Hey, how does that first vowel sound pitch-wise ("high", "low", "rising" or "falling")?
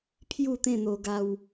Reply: falling